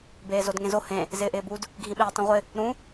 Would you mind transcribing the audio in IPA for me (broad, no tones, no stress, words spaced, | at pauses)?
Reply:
beːzodŋẽzo hẽ | zɪːʔɪːbud | ɡʱĩɓeːtˤĩʁʷɪ | ɾũ